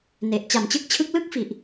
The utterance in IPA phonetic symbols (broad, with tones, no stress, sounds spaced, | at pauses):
n e˨˩ ʔ t͡ɕ a˨˩ m t͡ɕ ɯ˥˩ k̚ t͡ɕʰ ɯ˦˥ k̚ l ɯ˥˩ k̚ f i˨˩ ʔ